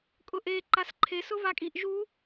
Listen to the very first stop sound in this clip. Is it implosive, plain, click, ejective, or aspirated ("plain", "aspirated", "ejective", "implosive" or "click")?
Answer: ejective